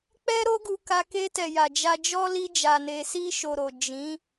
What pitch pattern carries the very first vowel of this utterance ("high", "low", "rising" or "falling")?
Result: high